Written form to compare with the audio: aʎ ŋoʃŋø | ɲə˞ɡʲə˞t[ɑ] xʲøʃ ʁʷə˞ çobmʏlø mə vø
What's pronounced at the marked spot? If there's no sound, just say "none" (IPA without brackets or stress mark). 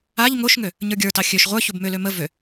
ɑ